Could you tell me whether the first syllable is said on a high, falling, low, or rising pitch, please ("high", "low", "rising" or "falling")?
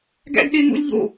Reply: high